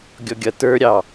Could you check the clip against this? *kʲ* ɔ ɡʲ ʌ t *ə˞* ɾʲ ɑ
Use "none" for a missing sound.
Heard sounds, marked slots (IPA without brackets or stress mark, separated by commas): ɡʲ, ə˞